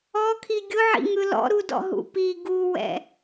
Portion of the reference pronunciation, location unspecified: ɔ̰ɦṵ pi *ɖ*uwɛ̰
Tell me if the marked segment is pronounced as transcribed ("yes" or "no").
no